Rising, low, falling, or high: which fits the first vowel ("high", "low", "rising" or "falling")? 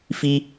high